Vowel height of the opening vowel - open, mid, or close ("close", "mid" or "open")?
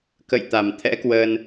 mid